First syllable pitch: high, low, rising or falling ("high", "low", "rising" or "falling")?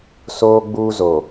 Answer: high